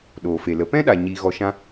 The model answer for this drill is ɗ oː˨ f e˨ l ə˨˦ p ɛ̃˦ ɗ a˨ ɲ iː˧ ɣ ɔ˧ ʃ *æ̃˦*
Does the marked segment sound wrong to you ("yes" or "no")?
yes